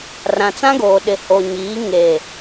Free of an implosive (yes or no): no